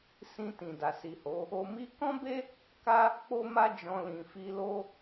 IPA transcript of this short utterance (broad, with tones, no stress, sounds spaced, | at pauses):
s ĩ˧ t ĩ˨ d a˨ s i˨ h o˨˦ | o˧ m i˦ k ɔ̃˦ b e˦ | k a˦ | k͡p o˧ m a˧ d͡ʒ ɔ̃˨ l ĩ˨ f i˧ l o˦